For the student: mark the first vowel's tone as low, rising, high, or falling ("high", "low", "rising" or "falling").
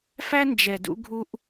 high